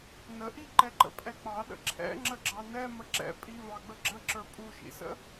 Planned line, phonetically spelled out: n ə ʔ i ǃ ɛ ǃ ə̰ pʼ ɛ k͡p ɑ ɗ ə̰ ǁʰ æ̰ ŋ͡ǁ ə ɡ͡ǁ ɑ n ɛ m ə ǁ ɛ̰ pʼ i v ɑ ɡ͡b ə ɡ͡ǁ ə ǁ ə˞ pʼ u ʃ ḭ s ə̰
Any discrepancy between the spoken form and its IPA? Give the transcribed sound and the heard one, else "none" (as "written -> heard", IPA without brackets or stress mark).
æ̰ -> ɛ̰